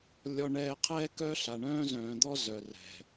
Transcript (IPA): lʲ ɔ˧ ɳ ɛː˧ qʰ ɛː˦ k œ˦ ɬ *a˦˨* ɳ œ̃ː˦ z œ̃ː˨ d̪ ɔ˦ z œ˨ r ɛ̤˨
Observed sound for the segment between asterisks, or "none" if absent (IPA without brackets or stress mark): a˨